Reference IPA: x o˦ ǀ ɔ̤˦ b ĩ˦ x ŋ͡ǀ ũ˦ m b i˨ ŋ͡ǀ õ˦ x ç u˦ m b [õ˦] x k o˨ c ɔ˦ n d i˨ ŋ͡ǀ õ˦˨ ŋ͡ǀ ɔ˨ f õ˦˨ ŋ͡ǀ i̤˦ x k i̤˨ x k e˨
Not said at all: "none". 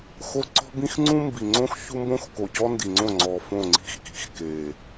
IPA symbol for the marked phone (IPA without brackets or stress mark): õ˦